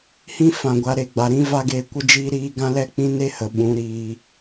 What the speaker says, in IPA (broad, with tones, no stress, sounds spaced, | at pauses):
h ĩ˦ f ã˨ ɡʷ a˧ ɾ e˧ ɡ͡b a˨ ɾ ĩ˦ v a˦ ɡ eː˧ kʷ ə˦ d͡ʒ iː˦ ɾ iː˦ ɡ ã˦ l ɛ˦ k͡p ĩ˦ n e˦ h ə˨ ɓ ũ˨˦ ɾ iː˧